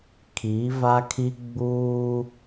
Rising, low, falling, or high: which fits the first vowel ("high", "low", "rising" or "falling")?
rising